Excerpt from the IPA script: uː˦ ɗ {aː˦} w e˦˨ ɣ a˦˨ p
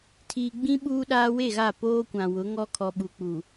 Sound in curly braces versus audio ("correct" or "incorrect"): correct